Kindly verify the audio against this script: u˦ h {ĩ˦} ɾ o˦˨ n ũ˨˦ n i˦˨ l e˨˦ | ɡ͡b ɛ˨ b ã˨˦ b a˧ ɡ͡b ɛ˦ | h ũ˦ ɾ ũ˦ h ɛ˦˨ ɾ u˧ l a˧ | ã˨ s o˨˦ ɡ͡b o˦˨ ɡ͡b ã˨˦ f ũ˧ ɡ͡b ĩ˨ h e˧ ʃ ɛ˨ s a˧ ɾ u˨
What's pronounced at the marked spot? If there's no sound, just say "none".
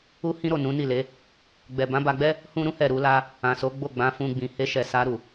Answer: ĩ˦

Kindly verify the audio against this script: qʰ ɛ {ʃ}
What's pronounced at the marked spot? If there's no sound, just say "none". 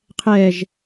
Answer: ʒ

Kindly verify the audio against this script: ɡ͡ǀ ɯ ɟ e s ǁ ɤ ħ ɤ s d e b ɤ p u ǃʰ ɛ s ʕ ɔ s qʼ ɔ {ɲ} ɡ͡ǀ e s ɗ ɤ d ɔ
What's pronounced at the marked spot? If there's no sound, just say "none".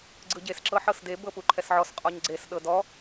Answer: ɲ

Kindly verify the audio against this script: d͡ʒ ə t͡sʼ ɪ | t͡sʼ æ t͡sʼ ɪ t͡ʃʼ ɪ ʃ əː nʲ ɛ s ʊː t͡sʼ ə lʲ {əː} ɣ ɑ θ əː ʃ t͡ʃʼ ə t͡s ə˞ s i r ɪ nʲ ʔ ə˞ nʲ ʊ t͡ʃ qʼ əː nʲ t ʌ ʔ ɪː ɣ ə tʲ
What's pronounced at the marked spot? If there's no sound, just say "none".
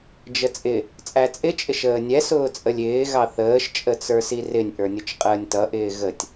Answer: ɪː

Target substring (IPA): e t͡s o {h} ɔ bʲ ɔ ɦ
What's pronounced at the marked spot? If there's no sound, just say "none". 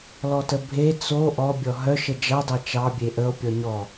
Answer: ʔ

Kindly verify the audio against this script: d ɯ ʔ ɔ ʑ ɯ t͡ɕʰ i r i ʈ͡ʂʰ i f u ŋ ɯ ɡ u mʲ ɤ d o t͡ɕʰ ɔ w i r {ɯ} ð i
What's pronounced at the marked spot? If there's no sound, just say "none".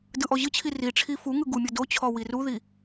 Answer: u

